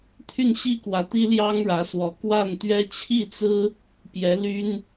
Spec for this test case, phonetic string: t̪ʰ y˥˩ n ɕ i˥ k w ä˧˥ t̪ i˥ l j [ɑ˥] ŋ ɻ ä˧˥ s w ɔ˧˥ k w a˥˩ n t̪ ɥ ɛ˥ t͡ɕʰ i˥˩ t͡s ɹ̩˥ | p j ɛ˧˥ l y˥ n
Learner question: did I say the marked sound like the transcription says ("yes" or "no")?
yes